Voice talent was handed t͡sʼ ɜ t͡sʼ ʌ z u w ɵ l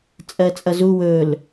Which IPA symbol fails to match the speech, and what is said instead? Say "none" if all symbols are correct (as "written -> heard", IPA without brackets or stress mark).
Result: none